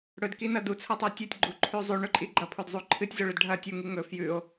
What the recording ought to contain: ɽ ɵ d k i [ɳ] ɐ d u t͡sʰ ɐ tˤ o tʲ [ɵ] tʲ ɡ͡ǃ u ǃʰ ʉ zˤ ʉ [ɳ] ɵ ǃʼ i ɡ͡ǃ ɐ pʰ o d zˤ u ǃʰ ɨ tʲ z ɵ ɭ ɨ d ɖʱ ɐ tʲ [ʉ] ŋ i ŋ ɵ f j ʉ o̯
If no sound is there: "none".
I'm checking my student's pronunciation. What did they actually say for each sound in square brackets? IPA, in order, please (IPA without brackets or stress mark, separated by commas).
n, ɵ, ɳ, u